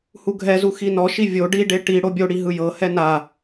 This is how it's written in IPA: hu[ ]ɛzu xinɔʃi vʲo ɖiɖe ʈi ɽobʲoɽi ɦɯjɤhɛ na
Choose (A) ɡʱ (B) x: A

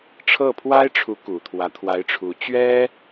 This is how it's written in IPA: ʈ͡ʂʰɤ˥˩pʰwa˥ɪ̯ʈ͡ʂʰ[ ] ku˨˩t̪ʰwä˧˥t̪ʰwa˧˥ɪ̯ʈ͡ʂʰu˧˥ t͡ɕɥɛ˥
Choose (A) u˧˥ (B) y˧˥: A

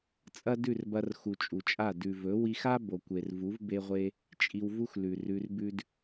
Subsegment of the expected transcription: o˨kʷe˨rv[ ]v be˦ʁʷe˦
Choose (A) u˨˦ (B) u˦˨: A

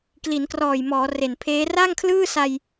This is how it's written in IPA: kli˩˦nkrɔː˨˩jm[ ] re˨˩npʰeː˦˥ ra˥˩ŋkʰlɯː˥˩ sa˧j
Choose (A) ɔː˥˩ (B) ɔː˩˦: B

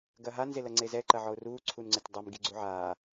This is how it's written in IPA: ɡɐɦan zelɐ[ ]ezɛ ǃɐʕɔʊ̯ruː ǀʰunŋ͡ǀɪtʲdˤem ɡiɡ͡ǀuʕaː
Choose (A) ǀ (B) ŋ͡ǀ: B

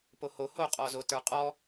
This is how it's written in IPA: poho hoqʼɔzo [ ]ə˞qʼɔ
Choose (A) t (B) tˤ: A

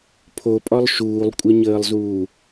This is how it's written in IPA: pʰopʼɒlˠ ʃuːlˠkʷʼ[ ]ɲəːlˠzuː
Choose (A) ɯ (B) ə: B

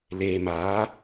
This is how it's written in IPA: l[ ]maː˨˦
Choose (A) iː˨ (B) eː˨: B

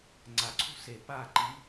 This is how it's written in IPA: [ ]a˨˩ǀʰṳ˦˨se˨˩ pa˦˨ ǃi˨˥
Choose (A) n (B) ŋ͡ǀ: B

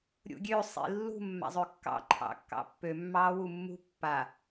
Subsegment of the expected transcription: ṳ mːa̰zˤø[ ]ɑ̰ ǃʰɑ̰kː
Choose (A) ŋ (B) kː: B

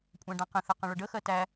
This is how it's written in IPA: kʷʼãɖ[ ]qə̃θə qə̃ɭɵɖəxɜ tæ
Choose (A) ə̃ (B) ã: B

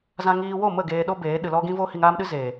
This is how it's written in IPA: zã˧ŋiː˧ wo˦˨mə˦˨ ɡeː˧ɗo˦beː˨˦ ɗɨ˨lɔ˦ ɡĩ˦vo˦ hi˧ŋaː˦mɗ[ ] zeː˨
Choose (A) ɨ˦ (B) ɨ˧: A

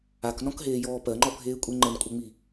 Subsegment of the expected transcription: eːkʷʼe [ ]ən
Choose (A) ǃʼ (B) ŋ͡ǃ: B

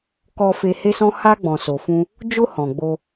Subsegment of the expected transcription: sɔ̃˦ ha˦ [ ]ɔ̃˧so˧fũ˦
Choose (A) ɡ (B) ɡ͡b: B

